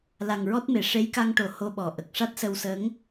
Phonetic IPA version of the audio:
l a˨˩ ŋ ɹ ɔ˦˥ t̚ m e˨˩˨ ʂ e˧˥ j k a˧ ŋ ʈ o˨˩˨ h o˧ ɓ ɔ˨˩ ʔ ə˨˩ k̚ ʂ a˦˥ t̚ s ə˧ w s ə˧˥ ŋ

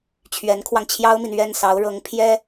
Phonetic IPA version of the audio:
t͡ɕʰ ɥ ɛ˧˥ n kʰ w ɑ˧ ŋ t͡ɕʰ j ɑ˥ ʊ̯ m i˨ n ɥ ɛ˥˩ n s ɑ˧˥ ʊ̯ ɻ ɤ˧˥ ŋ pʰ j ɛ˥

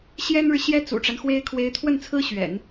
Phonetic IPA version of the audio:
ɕ j ɛ˥ n ɻ ɻ̩˨ ɕ j ɛ˥ t͡s ṵ˨˩ ʈ͡ʂ a˦ n x w e˥ ɪ̯ kʰ w e˧˥ ɪ̯ t̪ʰ w ə˥˩ n t͡sʰ ɹ̩˥ ɕ ɥ ɛ̰˨˩˦ n

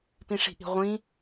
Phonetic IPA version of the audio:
p ĩ ʂ i̤ ʔ i̤ ʁʷ ĩ

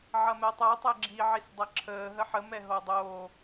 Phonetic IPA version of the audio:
ʕ ɐ m ɛ tˤ o tˤ ɛ ɡ͡ǁ i ʕ i s dˤ ɐ ǁʰ əː ɦ ə ħ ə m ɛ ɦ o dˤ oː

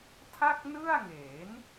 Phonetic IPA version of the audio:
tʰ a˥˩ k̚ n ɯ˥˩ a̯ ŋ e˩˦ n

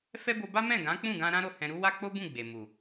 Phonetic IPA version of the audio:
f ɛ˦ b o˧ b a˦ m ɛ̃˦˨ ɡ ã˨˦ k͡p ũ˦˨ ɡ ã˧ ɾ ã˦ ɾ o˦˨ h ɛ̃˧ ɾ u˦ w a˦ k͡p o˦ b ũ˦˨ ɡ͡b e˨ m u˨

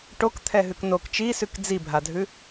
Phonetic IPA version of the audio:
ʈ o k t̪ʰ ɛ ɦ ʉ k n o k t͡ʃ i s ʉ k d͡z i bʱ a dʱ ʉ

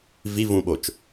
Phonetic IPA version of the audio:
v i v ũ ɓ o t͡ʃ

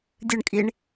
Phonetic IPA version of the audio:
dʲ ɨ ɳ kʼ i ɳ

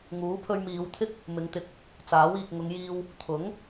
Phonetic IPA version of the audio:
ŋ uː˨˥ pʰ ɵ˧ ɥ m iː˨˧ w t̪ʰ ɪ˥ k̚ | m ɪ˨ ŋ t̪ ɪ˧ k̚ | t͡s aː˨˥ w iː˨ k̚ ŋ ʊ˨˧ ŋ j iː˧ w | t̪ʰ ʊ˨˥ ŋ

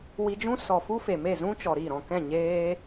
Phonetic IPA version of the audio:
w i˧ d͡ʒ ũ˦ s ɔ˨ f u˦ f e˨ m e˦˨ z ũ˦ t͡ʃ ɔ˨ ɾ i˦˨ ɾ ɔ̃˦˨ k ɛ̃˦˨ ɲ eː˧

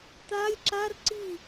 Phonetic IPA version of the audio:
t̪ a lʲ ǁ a r ǀ i

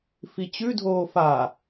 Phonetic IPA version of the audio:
f i t͡ɕ ʉ dʱ oː f a

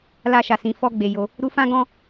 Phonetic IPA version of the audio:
l a˧ ʃ a˨ s ĩ˨ f ɔ˧ ɡ͡b e˨ j o˧ | ɾ u˧ f ã˦ ɡ ɔ̃˦

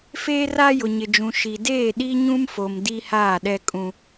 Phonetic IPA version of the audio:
f eː˦ r a˦ j ʊ˨ ɲ ɪ˨ d͡ʒ ũ˨ ʃ i˨ d eː˦˨ ɗ i˦ ɲ ũ˦ m f o˨ m d i˦ h aː˦˨ ɗ ɛ˦ kʼ ũ˦

